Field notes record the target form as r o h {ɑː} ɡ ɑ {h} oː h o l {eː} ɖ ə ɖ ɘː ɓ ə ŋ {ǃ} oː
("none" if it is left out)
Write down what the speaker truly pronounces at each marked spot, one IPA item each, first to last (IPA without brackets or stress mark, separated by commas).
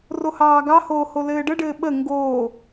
ɑː, h, ɘː, ɡ